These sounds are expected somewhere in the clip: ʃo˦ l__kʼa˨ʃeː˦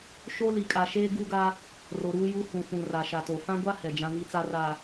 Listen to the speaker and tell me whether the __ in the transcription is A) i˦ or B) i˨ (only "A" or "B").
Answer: B